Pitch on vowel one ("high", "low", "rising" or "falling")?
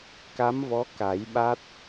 rising